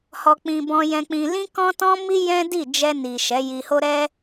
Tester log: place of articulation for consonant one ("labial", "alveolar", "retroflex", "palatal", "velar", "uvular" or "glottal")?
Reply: glottal